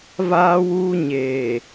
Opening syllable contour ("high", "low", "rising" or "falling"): high